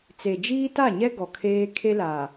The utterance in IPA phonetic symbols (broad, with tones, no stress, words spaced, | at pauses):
t͡se˨d͡ʒiː˦ ta˦˨ɲɛ˦ ɡɔ˨kʰeː˦ kʰe˦la˨